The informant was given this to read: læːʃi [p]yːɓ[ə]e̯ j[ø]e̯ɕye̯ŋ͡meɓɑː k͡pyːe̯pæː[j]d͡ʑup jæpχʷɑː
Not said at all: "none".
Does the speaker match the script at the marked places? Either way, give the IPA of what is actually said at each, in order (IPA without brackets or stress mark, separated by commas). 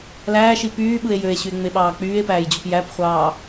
p, ɯ, ø, j